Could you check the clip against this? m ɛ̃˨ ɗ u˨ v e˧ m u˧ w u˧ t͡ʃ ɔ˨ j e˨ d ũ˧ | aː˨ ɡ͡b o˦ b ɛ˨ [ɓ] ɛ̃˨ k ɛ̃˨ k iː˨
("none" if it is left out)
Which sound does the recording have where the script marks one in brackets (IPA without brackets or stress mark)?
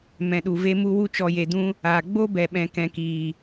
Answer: ɓ